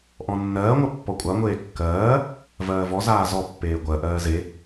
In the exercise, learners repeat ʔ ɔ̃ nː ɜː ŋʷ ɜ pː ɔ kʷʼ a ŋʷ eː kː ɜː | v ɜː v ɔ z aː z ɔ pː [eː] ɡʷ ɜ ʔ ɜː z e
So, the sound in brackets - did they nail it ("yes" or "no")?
yes